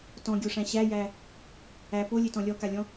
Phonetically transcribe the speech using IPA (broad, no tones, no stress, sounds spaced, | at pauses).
t ɔ̃ ɡʲ o ʂ æ̃ ɕ æ j æ | æ p o lʲ e t ɔ̃ lʲ ɔ k a lʲ ɔ̃